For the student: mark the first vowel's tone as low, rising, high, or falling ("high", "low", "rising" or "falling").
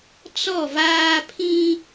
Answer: falling